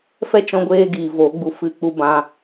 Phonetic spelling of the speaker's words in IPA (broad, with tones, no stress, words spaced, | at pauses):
fɛ˦t͡ʃɔ̃˧ɡʷeː˧ɡiː˨ vo˨˦ɡ͡bu˧ fɨ˧k͡pu˧ bã˧